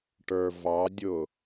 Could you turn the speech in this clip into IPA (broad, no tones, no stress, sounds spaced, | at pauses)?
ʈ ə˞ v ɑ dʲ ʊ